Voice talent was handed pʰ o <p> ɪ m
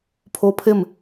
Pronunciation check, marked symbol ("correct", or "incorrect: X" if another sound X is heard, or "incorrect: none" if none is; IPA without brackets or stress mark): incorrect: pʰ